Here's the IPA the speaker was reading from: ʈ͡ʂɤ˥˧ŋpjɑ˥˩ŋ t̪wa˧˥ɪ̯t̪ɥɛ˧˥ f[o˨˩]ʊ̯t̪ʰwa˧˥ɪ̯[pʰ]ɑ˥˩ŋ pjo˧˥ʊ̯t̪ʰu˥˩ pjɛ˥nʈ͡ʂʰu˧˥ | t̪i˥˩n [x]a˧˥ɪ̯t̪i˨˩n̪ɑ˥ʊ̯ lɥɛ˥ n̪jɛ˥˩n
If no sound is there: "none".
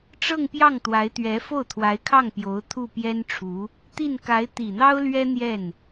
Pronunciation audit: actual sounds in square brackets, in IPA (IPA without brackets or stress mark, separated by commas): o˥˩, kʰ, k